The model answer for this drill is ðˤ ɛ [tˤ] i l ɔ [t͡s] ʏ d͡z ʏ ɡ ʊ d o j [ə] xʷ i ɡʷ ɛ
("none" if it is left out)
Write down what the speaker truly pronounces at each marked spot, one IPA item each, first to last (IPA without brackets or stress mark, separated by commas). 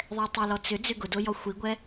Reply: tˤ, t͡s, ɔ